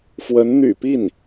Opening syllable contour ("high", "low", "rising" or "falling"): rising